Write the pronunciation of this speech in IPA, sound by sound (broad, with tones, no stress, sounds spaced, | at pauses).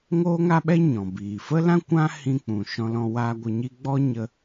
ŋ oː˦ ŋ a˦ ɓ ɛ˦ ɲ ɔ̃˨ b iː˨ f ə˦ l ã˦ kʷ ã˦ h ĩ˧ k͡p ũ˨ ʃ ɔ̃˧ l ɔ̃˧ w aː˧ ɡʷ ə˧ ɲ i˦ ɡ͡b ɔ˦ ɲ ə˧